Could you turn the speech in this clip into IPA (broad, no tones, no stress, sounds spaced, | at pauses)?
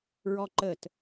ɹ ɔ ǃ ə t